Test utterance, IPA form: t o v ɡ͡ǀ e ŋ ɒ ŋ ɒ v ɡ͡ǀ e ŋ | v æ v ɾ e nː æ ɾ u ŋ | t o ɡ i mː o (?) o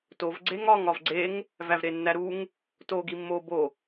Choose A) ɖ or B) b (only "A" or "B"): B